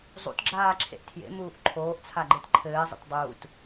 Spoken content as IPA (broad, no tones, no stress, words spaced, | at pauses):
zˤṵtɡ͡ǁaːǁʰḛʔ tʰjḛmuːʔ ǃʰoːʔt͡sʰaɡ͡ǃet ǃʰɘːzˤə̰t dˤuːt